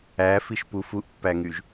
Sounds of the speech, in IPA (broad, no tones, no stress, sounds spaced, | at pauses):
æ f i ʃ p u f u ʔ pː æ ŋ y ʒ